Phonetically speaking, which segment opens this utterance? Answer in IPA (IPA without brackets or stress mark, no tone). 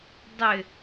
dˤ